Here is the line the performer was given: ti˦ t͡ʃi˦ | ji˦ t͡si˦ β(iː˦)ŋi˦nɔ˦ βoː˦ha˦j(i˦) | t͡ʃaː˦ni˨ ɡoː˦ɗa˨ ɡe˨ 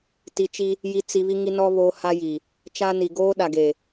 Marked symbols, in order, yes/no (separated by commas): no, no